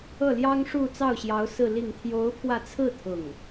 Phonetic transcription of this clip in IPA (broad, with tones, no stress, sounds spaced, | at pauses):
ɤ˥˩ l j ɑ˥ ŋ ʂ u˥˧ t͡s ɑ˥˩ ʊ̯ ɕ j ɑ˧˥ ʊ̯ s ɹ̩˥˧ l i˥˩ ŋ t̪ʰ j o˧˥ ʊ̯ pʰ w ä˧ t͡sʰ ɹ̩˥˧ t̪ʰ ʊ˥˩ ŋ